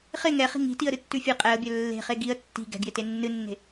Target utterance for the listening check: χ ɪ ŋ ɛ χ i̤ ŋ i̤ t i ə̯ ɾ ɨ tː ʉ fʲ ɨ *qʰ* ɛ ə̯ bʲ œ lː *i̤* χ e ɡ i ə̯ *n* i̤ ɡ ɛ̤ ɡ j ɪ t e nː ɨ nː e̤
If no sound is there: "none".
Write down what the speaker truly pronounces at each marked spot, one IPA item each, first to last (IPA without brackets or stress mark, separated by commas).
qʼ, e̤, tː